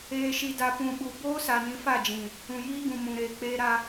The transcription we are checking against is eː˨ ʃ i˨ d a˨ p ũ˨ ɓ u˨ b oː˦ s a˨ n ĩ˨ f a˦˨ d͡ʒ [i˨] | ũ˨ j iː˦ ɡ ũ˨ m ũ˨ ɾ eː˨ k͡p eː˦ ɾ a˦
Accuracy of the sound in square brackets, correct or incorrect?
incorrect